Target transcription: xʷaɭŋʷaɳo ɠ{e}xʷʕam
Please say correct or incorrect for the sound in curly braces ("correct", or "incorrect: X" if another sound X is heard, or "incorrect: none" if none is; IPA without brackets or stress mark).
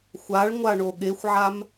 correct